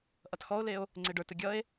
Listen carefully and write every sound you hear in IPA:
ʔ ʌ t x ɔ o̯ l e o̯ | ŋ͡ǀ e ɖ ə˞ t ʊ ɡʲ ʌ e̯

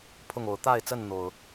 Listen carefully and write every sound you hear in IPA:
pʰ ʊ˥˨ ŋ o˨˦ ʊ̯ t̪ a˥˨ ɪ̯ t͡s ə˥˨ n n̪ o˨˩ ʊ̯

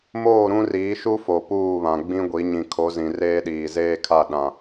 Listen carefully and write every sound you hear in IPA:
m oː˦˨ ɾ ũ˦ r iː˨˦ ʃ u˦ f o˨ p uː˦˨ β ã˨ ɡ͡b ĩ˦ ɡʷ i˨˦ ɲ ĩ˨ kʰ o˨˦ z ĩ˨ r eː˦ ɗ iː˨ z eː˦ kʰ a˦˨ ɗ ã˨

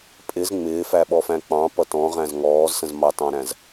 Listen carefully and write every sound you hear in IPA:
pʼ ɪ z ŋ͡m ɪː f æ ɓ ɔ f æ̃ k͡p ɑ̃ p ʌ t ɔ̃ ʁ æ̃ z ŋ ɔː z s ə̃ z m ɑ t ɑ̃ ɾ æ̃ z

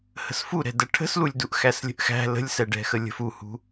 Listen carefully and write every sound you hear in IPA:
h ə̤ s f u ɾ ɛ̤ d ə ʈʰ ə̤ s l u lʲ d u ʔ x æ s lʲ ə̤ ʔ x æ̤ l ə̤ lʲ s ɛ ɖ ɛ̤ x ə lʲ ə̤ f u h ṳ

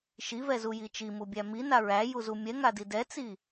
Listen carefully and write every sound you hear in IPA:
ʃ i v ɛ z u j i t͡ʃ i m u bʲ æ m i n a ɹ æ j u z u mʲ ɛ ŋ a d i d ɛ t͡s i

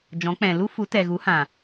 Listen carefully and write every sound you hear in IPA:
d͡ʒ ɔ̃˨˦ k͡p ɛ̃˨ l u˦ f u˨˦ t ɛ˨ ɣ u˨˦ h ã˨

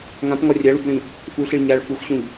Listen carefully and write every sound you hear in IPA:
ŋ ã p ŋ ɒ rʲ a ɭ u b ɭ ĩ | f u ɬ i ɭ ɲ a ɭ f u x ɕ ũ ʎ

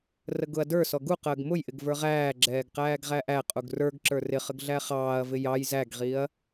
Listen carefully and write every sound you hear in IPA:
r ə ɡ ʊ ɐ̯ d ə˞ s ɔ ɡ u q əː ɡ m ʊ j ʔ ɪ ɡ v ə˞ ʁ æː ɡ͡ǁ ɛː ɡ q æː ɡ ʁ æ ʔ æ qʼ u ɡ r ə˞ ɡ ǁ ə˞ r ɪ χ ə ɡ ɮ æ χ ɑː ɐ̯ v ɪ j ɑ j z æ ɡ ʁ i ɐ̯

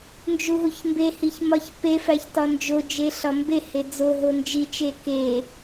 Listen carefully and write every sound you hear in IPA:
n d͡ʒ u ɦ u ç m b e h i ç m ɒ ç p e f æ ç t ɒ n d͡ʒ o d͡ʒ e ɬ ɒ m b e h e d͡z o ɦ o n d͡ʒ i t͡ʃ e k e

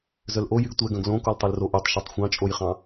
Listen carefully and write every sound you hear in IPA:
z œ l ʔ o j y ɡ tʷ ɛ ɡ œ̃ ɡ l õ k o l tˤ ø l r o ʔ y tˤ ʃ œ tˤ xʷ ɑ̃ t͡ʃʼ o j χ ɑ̃

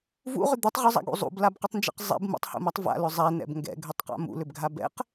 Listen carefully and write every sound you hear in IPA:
v ṵ ʁ ʏ d̪ u tˤ ʁ ʏ zˤ a̰ ɡ ṵ zˤ ṵ b l a b q ʏ tˤ n d͡ʒ ɛ̰ q zˤ ɛ̰ b m ṵ tˤ h ṵ m a tˤ v a̰ l ʏ zˤ ɛ n ɛ̰ b ŋ ɡ ɛ̰ ɡʱ ʏ tˤ q a̰ m ṵ l ʏ b ɡʱ a b ɛ̰ q

